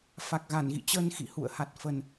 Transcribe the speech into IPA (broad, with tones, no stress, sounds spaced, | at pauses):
f a˨˩ k̚ ɣ a˧˩ n ɣ ḭ˧˨ t͡ɕ əː˧ n x ḭ˧˨ h ṵ˧˨ ə̯ h a˨˩ t̚ f ə˨˩ n